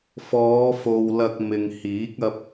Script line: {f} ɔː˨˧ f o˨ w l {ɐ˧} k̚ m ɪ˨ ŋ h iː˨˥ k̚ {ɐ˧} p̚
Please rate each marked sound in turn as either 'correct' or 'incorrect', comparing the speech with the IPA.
correct, correct, correct

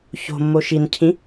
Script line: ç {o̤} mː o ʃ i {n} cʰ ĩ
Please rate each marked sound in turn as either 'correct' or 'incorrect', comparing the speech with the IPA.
correct, correct

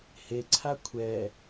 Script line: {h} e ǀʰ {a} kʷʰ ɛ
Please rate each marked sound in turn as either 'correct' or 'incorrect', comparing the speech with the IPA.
correct, correct

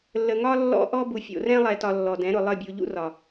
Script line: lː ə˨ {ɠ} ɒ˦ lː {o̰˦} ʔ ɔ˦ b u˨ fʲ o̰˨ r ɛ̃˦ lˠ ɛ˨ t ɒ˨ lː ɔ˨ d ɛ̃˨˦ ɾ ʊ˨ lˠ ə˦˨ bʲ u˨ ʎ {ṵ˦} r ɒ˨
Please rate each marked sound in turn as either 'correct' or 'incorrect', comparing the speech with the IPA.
incorrect: ŋ, incorrect: ɔ̰˦, correct

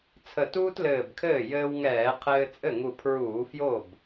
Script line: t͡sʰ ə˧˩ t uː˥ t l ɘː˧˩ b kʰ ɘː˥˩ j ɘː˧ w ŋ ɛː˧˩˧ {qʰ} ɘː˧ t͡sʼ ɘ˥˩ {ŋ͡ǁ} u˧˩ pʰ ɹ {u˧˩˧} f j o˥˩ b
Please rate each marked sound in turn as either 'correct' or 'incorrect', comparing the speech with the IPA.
correct, incorrect: ŋ, incorrect: uː˧˩˧

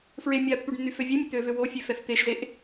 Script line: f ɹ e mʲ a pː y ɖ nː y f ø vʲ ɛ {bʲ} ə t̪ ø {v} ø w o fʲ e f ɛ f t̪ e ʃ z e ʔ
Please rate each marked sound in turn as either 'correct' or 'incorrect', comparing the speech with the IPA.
incorrect: mʲ, correct

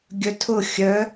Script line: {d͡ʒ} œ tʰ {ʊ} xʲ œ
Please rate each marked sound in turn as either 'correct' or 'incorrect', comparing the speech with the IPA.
incorrect: ɡʲ, correct

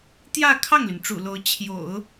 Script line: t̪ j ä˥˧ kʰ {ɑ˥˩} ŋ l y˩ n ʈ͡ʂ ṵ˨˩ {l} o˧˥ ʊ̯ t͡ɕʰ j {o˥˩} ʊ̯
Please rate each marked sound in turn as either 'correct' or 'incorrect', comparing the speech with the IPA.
correct, correct, incorrect: o̰˨˩˦

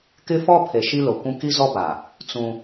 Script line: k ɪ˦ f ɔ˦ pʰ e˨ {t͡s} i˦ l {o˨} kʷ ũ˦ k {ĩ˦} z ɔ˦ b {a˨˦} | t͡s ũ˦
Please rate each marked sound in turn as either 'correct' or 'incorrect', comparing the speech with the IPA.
incorrect: ʃ, correct, incorrect: i˦, incorrect: a˨

